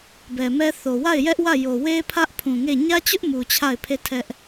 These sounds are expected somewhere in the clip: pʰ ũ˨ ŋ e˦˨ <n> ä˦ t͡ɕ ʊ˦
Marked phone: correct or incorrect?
incorrect